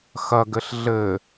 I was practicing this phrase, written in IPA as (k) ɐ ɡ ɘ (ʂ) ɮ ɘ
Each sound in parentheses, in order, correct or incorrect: incorrect: x, incorrect: ɬ

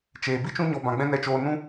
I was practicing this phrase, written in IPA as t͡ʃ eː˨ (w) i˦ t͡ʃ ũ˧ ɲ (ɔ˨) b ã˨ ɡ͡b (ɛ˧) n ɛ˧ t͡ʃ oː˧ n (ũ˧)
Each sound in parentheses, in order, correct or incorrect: incorrect: b, correct, incorrect: ɛ̃˧, incorrect: ũ˦

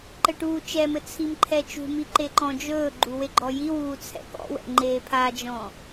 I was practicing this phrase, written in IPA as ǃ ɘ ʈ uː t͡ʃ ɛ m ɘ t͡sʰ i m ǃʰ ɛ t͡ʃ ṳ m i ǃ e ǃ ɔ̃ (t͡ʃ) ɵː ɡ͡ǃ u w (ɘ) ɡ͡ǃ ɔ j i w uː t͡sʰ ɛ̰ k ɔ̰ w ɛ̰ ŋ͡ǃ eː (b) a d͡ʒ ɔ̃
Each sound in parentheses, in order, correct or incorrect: incorrect: d͡ʒ, incorrect: e, incorrect: pʰ

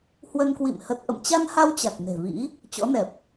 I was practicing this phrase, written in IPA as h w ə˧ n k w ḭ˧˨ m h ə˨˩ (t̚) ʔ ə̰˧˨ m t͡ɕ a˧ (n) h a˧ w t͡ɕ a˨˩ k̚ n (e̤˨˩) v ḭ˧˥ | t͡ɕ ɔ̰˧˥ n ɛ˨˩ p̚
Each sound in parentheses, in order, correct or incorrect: correct, correct, correct

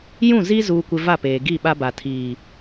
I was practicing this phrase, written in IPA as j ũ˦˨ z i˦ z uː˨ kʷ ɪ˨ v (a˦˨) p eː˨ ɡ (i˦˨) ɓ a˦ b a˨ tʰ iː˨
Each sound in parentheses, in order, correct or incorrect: correct, correct

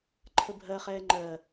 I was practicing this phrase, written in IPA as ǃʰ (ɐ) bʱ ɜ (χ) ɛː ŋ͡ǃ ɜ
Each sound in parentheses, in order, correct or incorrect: incorrect: ə, correct

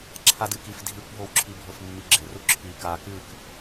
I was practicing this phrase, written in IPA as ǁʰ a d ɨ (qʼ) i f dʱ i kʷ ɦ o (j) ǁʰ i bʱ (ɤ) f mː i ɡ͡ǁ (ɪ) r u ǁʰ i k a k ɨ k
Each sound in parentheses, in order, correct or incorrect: incorrect: k, incorrect: w, correct, correct

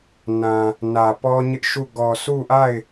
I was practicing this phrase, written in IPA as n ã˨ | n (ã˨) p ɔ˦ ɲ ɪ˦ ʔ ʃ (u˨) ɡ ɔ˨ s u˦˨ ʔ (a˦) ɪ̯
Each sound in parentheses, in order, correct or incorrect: incorrect: ä˨, incorrect: u˦˨, incorrect: a˦˨

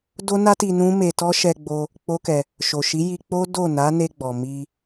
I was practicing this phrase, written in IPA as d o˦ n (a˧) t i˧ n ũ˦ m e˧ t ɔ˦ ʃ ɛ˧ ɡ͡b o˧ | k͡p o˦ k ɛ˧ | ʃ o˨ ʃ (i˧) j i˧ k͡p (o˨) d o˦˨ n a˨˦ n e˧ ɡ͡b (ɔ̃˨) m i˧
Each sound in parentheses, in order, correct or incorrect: incorrect: a˦, incorrect: i˨˦, incorrect: o˦, incorrect: ɔ˨

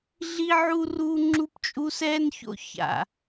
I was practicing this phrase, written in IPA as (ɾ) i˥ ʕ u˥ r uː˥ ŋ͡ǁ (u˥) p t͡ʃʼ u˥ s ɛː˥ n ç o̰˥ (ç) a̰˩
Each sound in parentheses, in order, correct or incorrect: incorrect: ɮ, correct, correct

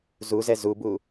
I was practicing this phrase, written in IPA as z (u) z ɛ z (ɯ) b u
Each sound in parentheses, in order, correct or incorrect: correct, incorrect: u

